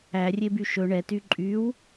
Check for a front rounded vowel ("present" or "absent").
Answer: present